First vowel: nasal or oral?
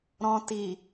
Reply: nasal